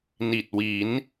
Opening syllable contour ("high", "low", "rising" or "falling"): low